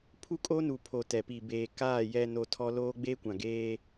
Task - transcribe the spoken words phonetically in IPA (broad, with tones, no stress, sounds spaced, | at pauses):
pʰ u˦ kʼ o˦ n u˨ pʰ o˨ t ɛ˨ p i˨ b eː˨ k aː˦˨ j ɛ˨ n o˨ tʰ ɔ˦ l oː˦ ɡ͡b eː˦ kʷ ã˨ ɡ eː˦